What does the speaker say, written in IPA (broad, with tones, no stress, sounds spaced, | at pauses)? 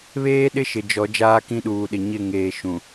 β eː˦ ɗ ɪ˦ ʃ ɪ˨ d͡ʒ ɔ˨˦ d͡ʒ aː˦ k ĩ˦ ɗ uː˨ ɗ ɪ˨ ɲ ɪ˦˨ ŋ eː˨ ʃ ũ˨